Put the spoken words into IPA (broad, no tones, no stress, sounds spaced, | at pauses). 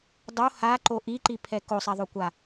dˤ o h a ǃ o ʔ i ǃ i pʰ ɛ k o sˤ ɛ ðˤ o kʷ a